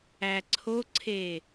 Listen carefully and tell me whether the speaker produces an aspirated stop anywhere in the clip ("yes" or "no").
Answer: yes